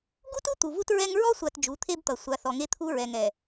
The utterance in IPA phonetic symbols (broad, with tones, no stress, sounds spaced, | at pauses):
ɡ u˦ t u˦ t̪ u˨ v u˦ t ɹ ɛ˦ ŋ ɹ ɔ˦ sʷ a˨ t d͡ʒ u˨˦ t̪ʰ e˦ b t̪ ʌ˨ sʷ a˨ θ ɔ˨ ŋ e˦ t̪ʰ u˦ ɹ ɛ˨ ŋ ɛ˨